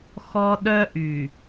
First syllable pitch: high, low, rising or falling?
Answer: high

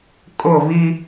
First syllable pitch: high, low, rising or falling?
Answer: falling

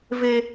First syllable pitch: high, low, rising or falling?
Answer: high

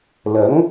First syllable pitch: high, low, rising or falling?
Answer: rising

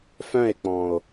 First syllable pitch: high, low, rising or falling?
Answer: falling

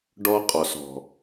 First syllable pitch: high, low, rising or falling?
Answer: high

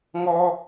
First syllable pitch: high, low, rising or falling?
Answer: high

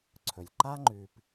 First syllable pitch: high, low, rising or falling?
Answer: low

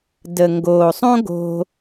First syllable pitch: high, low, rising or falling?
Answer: low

